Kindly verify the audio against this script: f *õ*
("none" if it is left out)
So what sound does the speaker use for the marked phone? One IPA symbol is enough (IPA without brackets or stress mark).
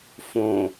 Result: õ